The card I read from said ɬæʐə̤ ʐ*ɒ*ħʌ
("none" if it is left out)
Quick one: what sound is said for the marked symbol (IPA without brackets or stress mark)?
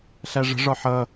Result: ɒ